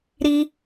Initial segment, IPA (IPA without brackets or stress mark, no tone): ɾ